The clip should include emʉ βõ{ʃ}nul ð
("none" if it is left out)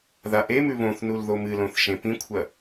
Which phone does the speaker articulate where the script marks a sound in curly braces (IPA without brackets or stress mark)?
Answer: θ